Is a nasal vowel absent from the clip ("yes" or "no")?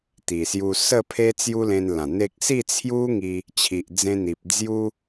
no